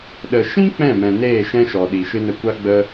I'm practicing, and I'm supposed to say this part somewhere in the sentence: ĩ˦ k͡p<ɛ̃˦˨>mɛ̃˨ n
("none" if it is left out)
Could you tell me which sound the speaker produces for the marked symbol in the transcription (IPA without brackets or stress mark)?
ɛ̃˦˨